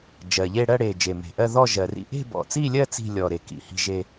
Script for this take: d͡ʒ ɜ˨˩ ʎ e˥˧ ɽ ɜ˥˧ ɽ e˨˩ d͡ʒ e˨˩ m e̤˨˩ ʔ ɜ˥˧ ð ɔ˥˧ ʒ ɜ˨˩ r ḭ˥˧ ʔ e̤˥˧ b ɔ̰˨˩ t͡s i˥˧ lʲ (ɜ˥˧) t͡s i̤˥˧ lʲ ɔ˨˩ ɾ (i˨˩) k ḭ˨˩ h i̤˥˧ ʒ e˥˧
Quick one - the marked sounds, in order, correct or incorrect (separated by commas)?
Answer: correct, incorrect